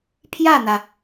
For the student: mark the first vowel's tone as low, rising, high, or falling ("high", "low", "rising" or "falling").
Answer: falling